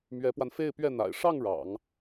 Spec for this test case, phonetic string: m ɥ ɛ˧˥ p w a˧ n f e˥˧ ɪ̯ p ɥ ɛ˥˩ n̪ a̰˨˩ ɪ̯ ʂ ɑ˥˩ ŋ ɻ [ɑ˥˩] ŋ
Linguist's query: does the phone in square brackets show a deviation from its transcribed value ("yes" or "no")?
yes